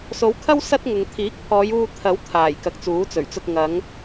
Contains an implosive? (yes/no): no